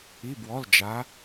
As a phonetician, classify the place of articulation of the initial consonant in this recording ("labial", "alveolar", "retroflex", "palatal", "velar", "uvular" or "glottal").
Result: labial